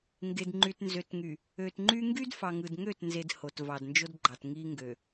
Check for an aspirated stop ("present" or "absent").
absent